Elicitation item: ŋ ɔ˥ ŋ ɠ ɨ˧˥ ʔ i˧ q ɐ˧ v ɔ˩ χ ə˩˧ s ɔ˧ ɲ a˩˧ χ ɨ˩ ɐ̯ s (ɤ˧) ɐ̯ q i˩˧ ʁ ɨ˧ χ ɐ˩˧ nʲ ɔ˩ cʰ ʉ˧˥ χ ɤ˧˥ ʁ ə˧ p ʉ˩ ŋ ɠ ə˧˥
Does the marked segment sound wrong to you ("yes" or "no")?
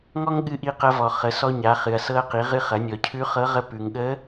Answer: no